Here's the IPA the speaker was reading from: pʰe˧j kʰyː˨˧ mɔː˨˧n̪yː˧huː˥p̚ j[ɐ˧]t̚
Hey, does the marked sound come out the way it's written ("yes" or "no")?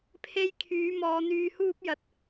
yes